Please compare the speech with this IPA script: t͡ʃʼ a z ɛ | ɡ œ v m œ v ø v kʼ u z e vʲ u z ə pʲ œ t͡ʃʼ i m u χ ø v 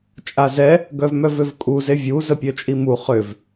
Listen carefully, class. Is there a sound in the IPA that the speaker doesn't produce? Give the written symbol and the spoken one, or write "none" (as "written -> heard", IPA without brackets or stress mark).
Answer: none